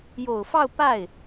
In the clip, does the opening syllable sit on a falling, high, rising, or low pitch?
low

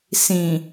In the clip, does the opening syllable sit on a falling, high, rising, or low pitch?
low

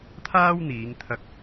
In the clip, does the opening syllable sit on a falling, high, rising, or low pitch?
high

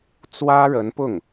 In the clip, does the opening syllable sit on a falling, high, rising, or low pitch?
high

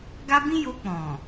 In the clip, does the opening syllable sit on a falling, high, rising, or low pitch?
high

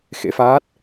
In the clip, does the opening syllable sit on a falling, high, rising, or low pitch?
rising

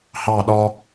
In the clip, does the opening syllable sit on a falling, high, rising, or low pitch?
falling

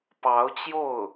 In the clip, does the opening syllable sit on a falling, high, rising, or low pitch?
rising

